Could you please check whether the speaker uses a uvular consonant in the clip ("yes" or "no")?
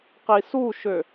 yes